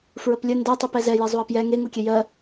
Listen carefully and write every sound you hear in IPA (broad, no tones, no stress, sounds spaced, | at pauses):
f ɹ ə p lʲ ə n d ɛ tˤ u p ɛ z ɛ j e zˤ u ɐ̯ p j ɛ ŋ e ŋ u kʲ ɛ j ɜ